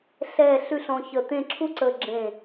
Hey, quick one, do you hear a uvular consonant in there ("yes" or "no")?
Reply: no